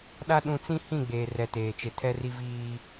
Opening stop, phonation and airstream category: implosive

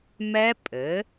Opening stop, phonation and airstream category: ejective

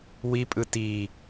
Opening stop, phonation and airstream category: ejective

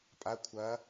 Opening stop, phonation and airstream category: ejective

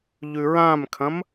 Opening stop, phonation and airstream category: aspirated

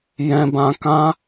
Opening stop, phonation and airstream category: plain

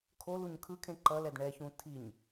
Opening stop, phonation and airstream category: aspirated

